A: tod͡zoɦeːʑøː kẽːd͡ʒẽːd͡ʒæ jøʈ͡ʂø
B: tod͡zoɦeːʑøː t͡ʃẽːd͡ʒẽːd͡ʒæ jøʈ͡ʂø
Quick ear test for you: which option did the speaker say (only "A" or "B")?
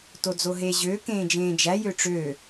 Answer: A